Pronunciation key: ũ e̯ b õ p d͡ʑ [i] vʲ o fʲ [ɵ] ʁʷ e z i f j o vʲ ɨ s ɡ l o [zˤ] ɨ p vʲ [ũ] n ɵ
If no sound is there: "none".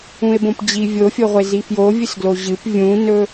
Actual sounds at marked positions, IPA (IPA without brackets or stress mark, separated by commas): i, o, ʑ, ũ